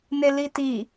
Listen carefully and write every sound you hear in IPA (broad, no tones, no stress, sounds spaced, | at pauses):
n e l i t i